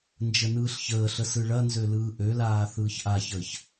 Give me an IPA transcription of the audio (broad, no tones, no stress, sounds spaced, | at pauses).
n d͡ʒ ə n ɯː ɬ ç əː ɬ ə s ɯ ɭ ɐ n z ø l ɯː ʔ ø l aː θ ɯː ç ʔ a ç əː ç